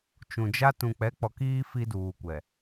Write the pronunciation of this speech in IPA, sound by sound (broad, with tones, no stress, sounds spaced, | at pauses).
t͡ʃ ũ˨ d͡ʒ a˦ t ũ˨ k͡p ɛ˨˦ k͡p ɔ˨ k iː˦ f i˦ d uː˨ kʷ ɛ˨